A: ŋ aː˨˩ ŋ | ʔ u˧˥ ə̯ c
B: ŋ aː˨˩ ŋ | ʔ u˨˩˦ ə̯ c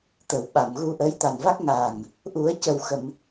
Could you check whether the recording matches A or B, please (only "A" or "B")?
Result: B